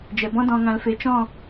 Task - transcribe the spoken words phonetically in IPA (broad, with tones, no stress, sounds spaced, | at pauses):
d͡ʒ ɛ˨ b ɔ̃˦ d ɔ̃˨ ŋ ã˨ l f e˨ t͡ʃ ɔ̃˦˨